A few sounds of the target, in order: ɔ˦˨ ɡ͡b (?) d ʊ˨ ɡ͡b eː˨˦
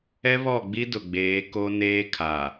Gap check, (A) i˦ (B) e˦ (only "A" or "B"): A